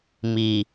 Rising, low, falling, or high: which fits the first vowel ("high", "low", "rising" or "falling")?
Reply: low